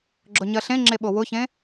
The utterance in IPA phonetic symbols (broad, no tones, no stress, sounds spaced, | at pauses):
ɡ͡ǁ ʊ ɲ ɜ ɬ ẽ ŋ͡ǁ e ɓ o w ʊ ç ẽ